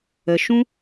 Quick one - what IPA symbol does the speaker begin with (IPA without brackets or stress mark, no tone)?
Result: ə